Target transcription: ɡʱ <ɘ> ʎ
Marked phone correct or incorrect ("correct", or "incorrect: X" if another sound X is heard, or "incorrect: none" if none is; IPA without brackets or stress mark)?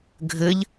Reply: correct